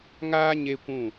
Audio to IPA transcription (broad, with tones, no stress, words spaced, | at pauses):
ŋaː˦ ɲe˦kʷũ˦˨